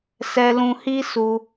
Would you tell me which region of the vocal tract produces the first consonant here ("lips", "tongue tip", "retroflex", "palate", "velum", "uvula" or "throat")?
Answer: tongue tip